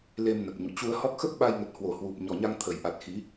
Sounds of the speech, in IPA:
le˧mnə˨˩p̚ɲṵ˧˨ t͡ɕu˧ə̯hɔ˦˥k̚ xə˦˥p̚ɓa˧jŋə˨˩t̚hwo˧˩ hwu˨˩p̚ ɲɔ˨˩ɲa˧ŋ t̪ʰə˨˩jʔa˨˩t̚ xi˨˦

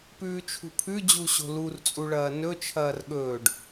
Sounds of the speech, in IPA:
pʉːt͡ʃʰṳpʰʉd͡ʑu ɕo̤lurt͡sʼu ɭɐːnɵt͡ʃʰɐːr ɠɵːɖ

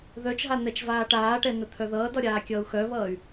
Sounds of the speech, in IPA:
ðœt͡ʃɦa n̪ɛt͡ʃvaːʈaːʈɛ nət̪ʰœðʌːdɒ ɾʲaːkʲʌːu̯xœβʌːy̯

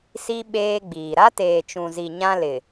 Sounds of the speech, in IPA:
si˦ ɓeː˦ɡ͡biː˨ ɾa˦teː˨t͡ʃũ˨zi˨ ɲã˦lɪ˨

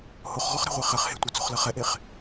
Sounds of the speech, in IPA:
hoχʁɔχɾe̤ʁʷe χɘχ he̤tʷet͡so̤χlɐ χɛʔeχ

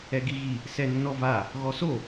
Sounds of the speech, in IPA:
ɛɡiɣi | sɛnːɔva | ɣɔso

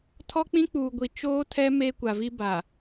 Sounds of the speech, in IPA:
tʰɔ˦k͡pĩ˦ k͡puː˨ɡʷi˨ t͡ʃoː˦tʰɛ˦ meː˦kʷa˨vi˦ ba˨

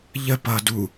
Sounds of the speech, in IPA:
ʎə pʌ du

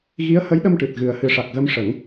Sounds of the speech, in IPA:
ɣi˧˥ə̯hə˧˥jɗə˧mʈɨ˨˩t̚ ɣɨ˨˩ə̯hɨ˨˩˦ʂa˨˩k̚ɣə˧m ʂə˨˩˦ŋ

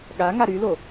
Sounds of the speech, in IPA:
ɠaŋa ɾylo

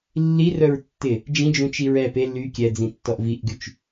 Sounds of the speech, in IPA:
lːirœɹ tːɪ | d͡ʒĩd͡ʒũt͡ʃi ɹɛ pe ly kʲɛd͡zĩtːɔʔ viʔɡyt͡ʃ

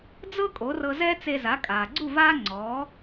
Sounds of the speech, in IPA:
d͡zɤ˥ kʼo˩˥rɤ˧zɛː˥ t͡se˧za˩˥ kʼaː˩ɡ͡ǀu˥˩ vaː˥ŋ͡ǀɔː˩˥

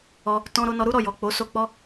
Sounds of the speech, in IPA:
ɔ˧ | tɔ̃˦ɾo˦ nɔ˧ɾu˦ɾɔ˦˨jɔ˨ k͡po˨˦so˦ k͡pɔ˦

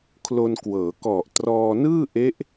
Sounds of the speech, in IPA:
kʰlo˧nkwɤː˩˦ kɔ˨˩ʔtrɔː˧ nɯː˥˩ʔe˦˥ʔ

